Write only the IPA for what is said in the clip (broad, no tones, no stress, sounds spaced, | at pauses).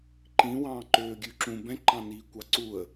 ǃ ĩ w ɑ̃ː ǃ øː ɡʲ ʉ ǁ ũ b ɛ̃ ǃ ɑ̃ n iː kʷ ɑ ǀ u ə̯